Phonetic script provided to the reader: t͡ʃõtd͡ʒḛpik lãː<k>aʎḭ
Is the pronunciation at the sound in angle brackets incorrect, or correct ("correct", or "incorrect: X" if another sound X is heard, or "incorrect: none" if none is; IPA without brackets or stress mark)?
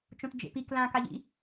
correct